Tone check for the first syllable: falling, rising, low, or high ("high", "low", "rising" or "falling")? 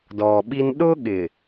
low